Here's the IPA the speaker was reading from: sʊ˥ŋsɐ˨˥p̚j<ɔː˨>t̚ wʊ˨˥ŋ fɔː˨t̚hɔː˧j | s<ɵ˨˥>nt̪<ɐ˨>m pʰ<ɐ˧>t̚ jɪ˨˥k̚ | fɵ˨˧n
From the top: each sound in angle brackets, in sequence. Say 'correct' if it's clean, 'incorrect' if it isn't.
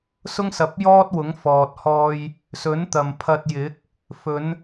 incorrect: ɔː˥, correct, correct, correct

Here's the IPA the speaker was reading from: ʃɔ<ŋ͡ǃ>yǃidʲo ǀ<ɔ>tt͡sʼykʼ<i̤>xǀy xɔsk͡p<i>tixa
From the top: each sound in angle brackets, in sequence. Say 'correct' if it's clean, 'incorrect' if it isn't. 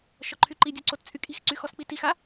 incorrect: ǃʰ, incorrect: o, correct, correct

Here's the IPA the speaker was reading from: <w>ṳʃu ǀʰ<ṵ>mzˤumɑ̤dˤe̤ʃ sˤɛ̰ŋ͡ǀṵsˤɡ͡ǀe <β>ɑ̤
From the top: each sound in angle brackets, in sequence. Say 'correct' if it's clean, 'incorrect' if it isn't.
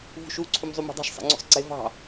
incorrect: v, incorrect: u, incorrect: v

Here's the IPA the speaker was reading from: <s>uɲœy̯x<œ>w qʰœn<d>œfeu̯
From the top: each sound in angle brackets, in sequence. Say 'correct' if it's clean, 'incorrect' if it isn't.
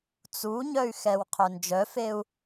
incorrect: t͡s, incorrect: ɛ, incorrect: d͡ʒ

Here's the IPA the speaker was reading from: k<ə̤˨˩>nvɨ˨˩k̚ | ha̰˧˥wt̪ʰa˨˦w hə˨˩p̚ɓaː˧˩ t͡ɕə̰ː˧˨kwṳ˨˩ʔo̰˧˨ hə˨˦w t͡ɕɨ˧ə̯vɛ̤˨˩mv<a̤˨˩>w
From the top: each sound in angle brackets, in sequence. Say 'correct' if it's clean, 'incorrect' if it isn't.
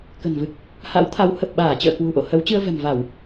correct, incorrect: a˧˩˨

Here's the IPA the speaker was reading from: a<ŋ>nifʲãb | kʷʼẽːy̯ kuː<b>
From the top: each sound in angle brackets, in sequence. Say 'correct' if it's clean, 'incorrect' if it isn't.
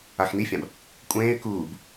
incorrect: x, correct

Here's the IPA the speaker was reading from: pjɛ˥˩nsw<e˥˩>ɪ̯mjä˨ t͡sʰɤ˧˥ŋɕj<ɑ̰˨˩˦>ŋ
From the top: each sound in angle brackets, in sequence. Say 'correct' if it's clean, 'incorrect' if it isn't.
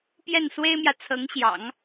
incorrect: e˥, correct

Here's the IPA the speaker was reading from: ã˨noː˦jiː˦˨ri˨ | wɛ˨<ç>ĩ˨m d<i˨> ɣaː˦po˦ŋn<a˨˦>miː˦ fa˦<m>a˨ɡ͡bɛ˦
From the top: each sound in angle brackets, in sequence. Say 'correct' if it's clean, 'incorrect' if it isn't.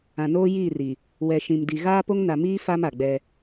incorrect: ʃ, correct, incorrect: a˨, correct

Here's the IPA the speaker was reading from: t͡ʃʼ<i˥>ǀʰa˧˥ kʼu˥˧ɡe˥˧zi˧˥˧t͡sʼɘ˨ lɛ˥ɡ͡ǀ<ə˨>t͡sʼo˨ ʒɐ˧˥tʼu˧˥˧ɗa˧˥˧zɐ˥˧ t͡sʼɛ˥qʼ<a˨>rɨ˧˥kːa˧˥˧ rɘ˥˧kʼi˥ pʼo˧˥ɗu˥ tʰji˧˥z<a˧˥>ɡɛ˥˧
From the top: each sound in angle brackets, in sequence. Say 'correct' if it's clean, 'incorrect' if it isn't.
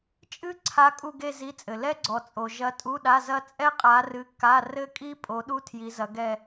incorrect: ɨ˥, incorrect: ɔ˨, incorrect: a˧˥, incorrect: ɐ˧˥

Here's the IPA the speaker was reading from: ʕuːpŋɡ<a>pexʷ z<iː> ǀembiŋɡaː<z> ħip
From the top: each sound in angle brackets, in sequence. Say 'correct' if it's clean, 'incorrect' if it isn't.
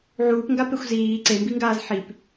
correct, correct, correct

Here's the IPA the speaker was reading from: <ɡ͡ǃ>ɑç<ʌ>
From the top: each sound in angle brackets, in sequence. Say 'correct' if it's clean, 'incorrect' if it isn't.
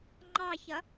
incorrect: ŋ͡ǃ, correct

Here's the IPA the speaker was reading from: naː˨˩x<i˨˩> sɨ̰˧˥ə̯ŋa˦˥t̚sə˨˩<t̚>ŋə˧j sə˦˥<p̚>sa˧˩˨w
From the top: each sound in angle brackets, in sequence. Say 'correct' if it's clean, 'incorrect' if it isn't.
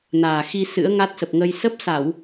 incorrect: i˧, incorrect: p̚, correct

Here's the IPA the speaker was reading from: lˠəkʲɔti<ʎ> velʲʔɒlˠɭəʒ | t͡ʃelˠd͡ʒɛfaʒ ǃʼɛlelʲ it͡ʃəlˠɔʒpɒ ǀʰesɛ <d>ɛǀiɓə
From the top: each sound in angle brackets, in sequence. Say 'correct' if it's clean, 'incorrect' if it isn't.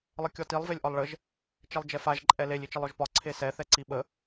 incorrect: lˠ, incorrect: θ

